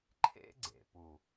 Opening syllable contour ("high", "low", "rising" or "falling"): high